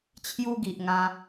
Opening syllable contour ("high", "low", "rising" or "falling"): high